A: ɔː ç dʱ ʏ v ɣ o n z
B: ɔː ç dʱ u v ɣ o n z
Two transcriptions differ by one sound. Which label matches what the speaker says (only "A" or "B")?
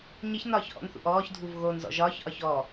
B